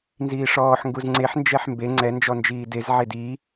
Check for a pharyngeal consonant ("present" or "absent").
present